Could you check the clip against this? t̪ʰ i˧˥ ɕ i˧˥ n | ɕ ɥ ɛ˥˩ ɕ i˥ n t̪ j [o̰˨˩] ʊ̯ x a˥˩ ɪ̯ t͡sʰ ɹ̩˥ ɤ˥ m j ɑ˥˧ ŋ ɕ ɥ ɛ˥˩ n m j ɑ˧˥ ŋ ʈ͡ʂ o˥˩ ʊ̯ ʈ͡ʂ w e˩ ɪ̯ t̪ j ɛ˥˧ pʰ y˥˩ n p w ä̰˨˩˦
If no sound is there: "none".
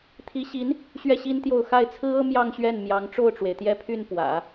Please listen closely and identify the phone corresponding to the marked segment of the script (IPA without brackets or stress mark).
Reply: o˥˧